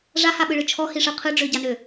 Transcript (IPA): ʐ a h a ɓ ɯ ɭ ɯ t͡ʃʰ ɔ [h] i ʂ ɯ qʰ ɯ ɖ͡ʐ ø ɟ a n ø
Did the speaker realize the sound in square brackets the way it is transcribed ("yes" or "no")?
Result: yes